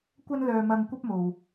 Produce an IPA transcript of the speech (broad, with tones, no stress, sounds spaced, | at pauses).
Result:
kʷ ɐ˥ n l œː˧ m ɐ˧ ŋ kʷ ɐ˥ p̚ m o˧ w